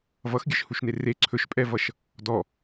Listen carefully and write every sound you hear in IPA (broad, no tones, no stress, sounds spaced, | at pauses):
v ʌ x ɡʲ ə ʃ h u ʃ n e r e ǀʰ ɵ ʃ pʼ ɛ v ʌ ʃ | d ɔ